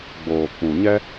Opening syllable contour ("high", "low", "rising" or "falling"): low